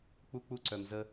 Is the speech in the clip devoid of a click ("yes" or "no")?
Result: no